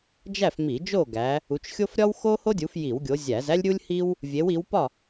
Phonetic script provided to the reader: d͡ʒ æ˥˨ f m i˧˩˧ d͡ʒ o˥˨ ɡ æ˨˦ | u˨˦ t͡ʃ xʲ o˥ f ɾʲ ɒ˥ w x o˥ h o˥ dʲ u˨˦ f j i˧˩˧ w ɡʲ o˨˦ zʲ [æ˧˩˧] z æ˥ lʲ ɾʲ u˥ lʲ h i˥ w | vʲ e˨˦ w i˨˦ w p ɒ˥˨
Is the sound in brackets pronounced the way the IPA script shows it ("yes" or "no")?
yes